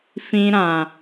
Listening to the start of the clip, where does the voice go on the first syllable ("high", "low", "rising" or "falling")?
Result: high